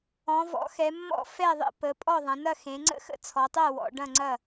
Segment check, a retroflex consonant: present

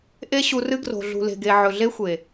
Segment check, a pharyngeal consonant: present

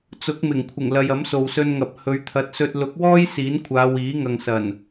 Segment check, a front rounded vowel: absent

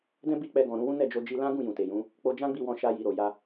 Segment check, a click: absent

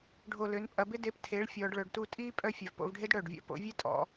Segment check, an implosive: absent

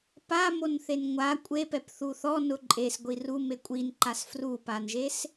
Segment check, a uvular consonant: absent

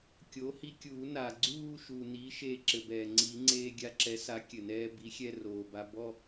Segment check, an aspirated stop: absent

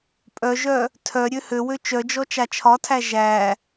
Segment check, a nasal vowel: absent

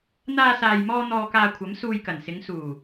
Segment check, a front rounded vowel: absent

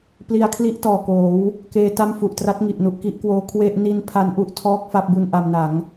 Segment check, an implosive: absent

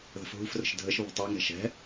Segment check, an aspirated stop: absent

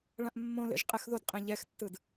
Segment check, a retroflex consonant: present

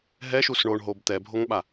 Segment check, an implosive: present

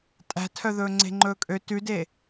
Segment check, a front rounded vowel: present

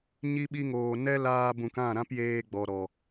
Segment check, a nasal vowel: present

